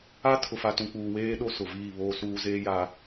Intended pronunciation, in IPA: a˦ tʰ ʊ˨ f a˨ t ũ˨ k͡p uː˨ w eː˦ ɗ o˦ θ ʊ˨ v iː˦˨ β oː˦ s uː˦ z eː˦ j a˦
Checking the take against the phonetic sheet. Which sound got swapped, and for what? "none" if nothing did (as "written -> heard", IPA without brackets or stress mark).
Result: θ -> s